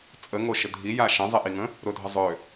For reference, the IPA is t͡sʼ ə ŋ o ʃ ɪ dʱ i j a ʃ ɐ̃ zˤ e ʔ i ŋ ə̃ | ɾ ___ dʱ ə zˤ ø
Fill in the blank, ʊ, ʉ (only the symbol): ʊ